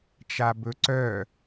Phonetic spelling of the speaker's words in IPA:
t͡ʃ a b ɵ ǀ œ

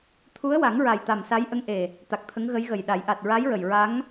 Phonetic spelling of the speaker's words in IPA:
t̪ʰ u˧˥ ə̯ w a˨˩˦ ŋ ɹ a˨˩ j t̪ a˨˩ m s a˧˥ j ʔ ə˧˥ ŋ ʔ e˨˩ | t̪ a˨˩ k̚ t̪ʰ ə˧˥ ŋ ɣ ə˧˥ j ɣ ə˨˩ j ɗ a˨˩˦ j ʔ a˨˩ t̚ ɹ a˧˥ j ɹ ə˨˩ j ɹ a˧˥ ŋ

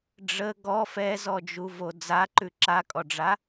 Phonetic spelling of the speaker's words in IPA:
ɖ͡ʐ ə ɡ ɔ f ɛ z ɔ d͡ʒ u v o d͡z a ǃ ʉ ǁ a kʼ ɔ ɖ͡ʐ a

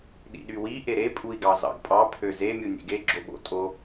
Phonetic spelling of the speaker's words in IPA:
ɗ ḭ ɗ y w i ʔ e ɾ e pʼ u i̯ ɡ ɑ z ɑ̰ ɡ pʼ ɑ pʰ ø z e mʲ u nʲ ḛ ɡ e ɡ͡ǁ o ɓ o̰ tʼ o

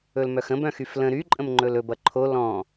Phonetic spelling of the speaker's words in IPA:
ɵ l m œ x ə̃ b œ̃ x y f l ə̃ ɾ y ǃʼ ə̃ m ŋ͡ǃ ɵ l ɵ b ʌ ǃʰ o l ɔ̃

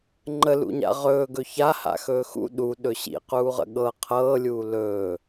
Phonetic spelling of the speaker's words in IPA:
ŋ͡ǃ ə l ṵ ɲ a̰ ʁ ɵː ɡ ɵ ç a h a̰ x ɵː x ṵ ɗ u ɗ ɵ ɕ ḭ q uː ʁ ə̰ ɠ ɤ qʰ ɤː lʲ uː l ɵː

